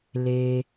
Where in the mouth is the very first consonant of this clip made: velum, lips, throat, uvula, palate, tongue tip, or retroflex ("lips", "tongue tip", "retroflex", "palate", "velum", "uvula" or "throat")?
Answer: tongue tip